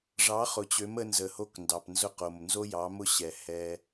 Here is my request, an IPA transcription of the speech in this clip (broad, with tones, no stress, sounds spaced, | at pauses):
ʐ ɑ˨˦ χ ʊ˨ t͡ɕ ø˨˦ m ə˦ n z ə˨ h o˦ k n d ɑ˨ p n z ʊ˦ q o˨ m n z o˦ j ɑ˨˦ m ʊ˦ ɕ ɛ˨ h ɛ˦